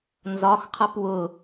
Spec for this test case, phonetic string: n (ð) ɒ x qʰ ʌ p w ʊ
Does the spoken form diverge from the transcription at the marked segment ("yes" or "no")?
yes